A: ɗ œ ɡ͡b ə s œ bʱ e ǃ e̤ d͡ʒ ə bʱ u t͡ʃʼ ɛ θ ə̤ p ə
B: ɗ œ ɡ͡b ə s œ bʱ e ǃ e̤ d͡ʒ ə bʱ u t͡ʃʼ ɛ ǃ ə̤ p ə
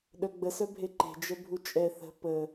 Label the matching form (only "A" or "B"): A